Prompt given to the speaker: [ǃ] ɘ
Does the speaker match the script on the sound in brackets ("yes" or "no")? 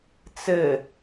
no